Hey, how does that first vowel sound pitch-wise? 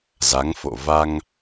rising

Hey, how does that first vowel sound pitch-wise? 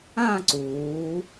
falling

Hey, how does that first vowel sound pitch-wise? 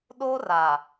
high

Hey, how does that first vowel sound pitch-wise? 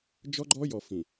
high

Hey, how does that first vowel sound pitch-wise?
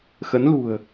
rising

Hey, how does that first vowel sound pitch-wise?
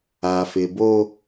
low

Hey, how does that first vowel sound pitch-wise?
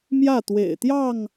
falling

